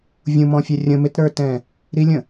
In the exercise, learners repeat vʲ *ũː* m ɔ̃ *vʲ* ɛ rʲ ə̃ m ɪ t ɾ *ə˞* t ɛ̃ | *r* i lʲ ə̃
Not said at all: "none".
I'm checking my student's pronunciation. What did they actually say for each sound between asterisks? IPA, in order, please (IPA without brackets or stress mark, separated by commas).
ũ, fʲ, ə˞, ɾ